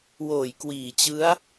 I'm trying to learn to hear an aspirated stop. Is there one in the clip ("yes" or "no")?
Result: no